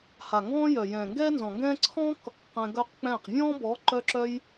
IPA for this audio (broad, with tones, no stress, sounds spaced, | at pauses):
h a˨ ŋ ɡ ɔ̃ː˦ j œ˨ j ɛ̃ː˨ ŋ ɡ ɛː˦ n z ɔ̃˨ ŋ ɡ ɛ̃ː˦ ǀʰ ɔ̃ː˦ k | q ɛ̃˧ ɡ œ˦ q k͡p ɛ̃ː˦˨ q vʲ ɔ̃ː˦ b ɔ˨˦ ǃ œ˧ ǁ œ˧ j